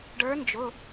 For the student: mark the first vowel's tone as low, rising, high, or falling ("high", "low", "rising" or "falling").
rising